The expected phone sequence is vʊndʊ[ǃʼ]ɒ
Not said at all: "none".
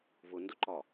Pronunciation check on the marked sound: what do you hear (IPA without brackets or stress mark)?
ǃ